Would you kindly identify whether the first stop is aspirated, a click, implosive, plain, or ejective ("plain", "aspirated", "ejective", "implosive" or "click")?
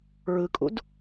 ejective